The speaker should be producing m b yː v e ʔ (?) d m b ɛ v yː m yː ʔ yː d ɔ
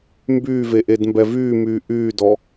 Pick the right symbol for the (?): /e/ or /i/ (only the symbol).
e